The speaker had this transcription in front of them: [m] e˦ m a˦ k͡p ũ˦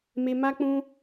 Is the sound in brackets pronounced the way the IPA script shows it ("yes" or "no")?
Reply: yes